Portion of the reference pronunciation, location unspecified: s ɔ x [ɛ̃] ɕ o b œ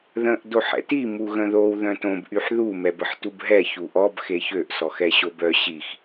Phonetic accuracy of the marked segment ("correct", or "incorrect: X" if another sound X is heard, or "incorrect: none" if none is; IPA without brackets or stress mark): incorrect: ɛ